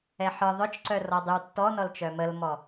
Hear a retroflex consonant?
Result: no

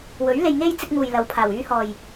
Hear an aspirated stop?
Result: yes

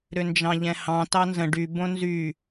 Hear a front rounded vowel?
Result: yes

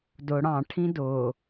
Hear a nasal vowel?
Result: yes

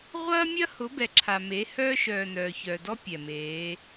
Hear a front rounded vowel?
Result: yes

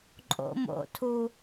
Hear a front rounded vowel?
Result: no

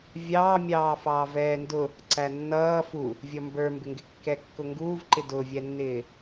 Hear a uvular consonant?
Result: no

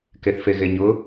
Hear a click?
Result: no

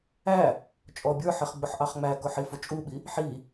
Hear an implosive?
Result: yes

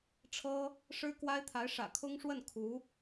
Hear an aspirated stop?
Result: yes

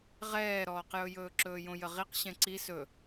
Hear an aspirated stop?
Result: no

